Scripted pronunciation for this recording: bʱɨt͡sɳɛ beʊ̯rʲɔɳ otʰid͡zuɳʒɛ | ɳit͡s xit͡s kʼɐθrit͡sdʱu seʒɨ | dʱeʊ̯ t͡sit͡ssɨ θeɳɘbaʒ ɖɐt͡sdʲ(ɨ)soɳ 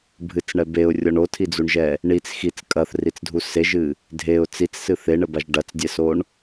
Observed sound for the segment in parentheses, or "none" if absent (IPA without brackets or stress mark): ɛ